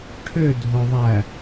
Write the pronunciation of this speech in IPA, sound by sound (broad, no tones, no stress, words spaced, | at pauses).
ʈʰø dʱoðˤæ